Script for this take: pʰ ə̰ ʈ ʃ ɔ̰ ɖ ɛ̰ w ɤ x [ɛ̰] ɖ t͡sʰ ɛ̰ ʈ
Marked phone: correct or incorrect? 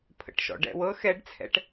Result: incorrect